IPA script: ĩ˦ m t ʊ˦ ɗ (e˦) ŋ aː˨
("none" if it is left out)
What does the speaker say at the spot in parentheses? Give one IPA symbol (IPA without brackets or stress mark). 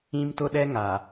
ɛ˦